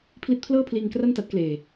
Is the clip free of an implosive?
yes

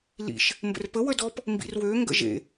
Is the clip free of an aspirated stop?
yes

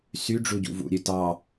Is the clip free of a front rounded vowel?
no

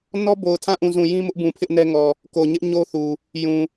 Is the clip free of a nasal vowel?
no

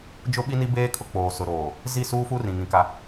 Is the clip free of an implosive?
no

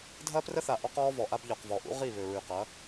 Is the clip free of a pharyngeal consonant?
yes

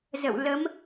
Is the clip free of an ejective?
yes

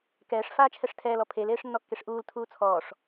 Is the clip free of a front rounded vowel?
yes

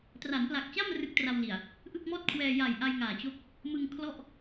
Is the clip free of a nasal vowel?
yes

